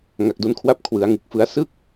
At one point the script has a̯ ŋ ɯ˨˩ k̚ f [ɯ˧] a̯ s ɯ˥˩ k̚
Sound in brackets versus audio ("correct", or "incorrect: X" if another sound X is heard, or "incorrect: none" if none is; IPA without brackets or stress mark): incorrect: ɯ˦˥